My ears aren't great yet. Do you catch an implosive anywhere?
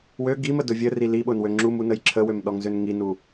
yes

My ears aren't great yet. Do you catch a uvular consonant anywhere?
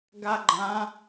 no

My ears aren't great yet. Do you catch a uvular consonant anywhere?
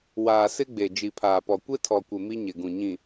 no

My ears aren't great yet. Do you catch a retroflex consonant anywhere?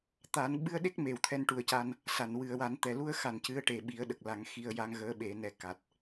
yes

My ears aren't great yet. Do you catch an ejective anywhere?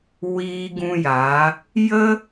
no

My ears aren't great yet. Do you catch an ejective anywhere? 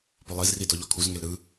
no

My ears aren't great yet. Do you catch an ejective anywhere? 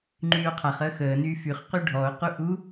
no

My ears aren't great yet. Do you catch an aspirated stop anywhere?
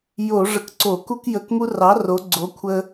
yes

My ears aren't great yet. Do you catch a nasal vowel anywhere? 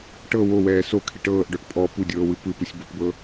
no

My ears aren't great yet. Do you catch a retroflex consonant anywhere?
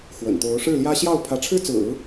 yes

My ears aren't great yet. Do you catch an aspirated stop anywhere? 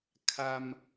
yes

